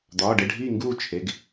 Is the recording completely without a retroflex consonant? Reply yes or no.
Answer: no